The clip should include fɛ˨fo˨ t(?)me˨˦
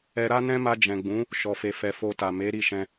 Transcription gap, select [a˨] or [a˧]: a˨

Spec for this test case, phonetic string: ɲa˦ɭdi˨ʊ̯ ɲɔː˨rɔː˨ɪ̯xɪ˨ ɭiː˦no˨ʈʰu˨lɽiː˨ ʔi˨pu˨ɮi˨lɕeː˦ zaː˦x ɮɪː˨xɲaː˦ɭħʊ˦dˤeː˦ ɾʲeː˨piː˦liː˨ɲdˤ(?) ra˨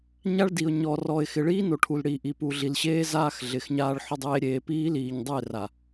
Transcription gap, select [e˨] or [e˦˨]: e˦˨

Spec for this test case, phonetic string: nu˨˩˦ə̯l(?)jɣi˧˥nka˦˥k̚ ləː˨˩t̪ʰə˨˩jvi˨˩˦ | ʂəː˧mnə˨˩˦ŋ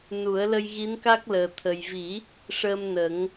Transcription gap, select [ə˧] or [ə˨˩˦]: ə˧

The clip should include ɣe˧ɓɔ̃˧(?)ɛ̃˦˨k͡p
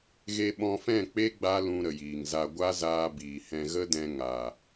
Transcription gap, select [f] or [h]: f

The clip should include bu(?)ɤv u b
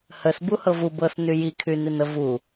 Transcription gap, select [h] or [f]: h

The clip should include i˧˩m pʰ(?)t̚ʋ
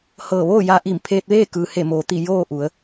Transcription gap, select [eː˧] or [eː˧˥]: eː˧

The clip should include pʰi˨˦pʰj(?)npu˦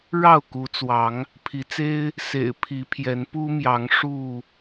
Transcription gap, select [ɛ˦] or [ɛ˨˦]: ɛ˨˦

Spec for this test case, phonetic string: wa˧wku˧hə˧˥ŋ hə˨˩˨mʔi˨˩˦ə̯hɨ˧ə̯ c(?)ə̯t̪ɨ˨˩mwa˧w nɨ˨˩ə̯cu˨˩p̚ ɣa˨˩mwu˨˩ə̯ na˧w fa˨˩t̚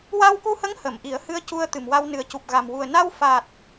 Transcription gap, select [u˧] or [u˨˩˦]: u˧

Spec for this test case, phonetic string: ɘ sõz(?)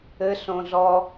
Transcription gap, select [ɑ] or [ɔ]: ɔ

